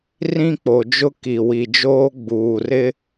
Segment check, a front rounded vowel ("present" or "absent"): absent